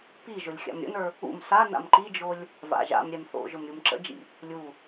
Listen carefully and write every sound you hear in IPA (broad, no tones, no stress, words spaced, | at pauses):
piʒʊlʲ xʲa̰mɾʲə̰nə˞ | ṵm sa na̰mǃid͡ʒolʲ | va̰ʒa̰mɾʲɛm θo̰ʒʊm ɾʲumǁə̰d͡ʒḭ | lʲu